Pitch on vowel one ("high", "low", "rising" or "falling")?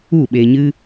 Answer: falling